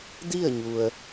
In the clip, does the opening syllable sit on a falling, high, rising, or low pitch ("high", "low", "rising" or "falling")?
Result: falling